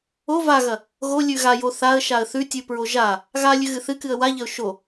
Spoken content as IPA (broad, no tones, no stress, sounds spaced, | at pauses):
o v a ɣ ɐ | ɣ o lʲ ʉ ɣ a j o θ a ə̯ ʃ a ə̯ θ ʉ tʲ ʉ p ɹ o ʒ a | ɣ a lʲ ʉ ɣ ɨ θ ɨ k ɨ ə̯ w a ʎ ɐ ʊ̯ ʃ o